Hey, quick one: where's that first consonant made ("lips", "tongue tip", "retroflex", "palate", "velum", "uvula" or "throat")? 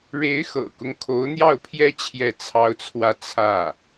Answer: retroflex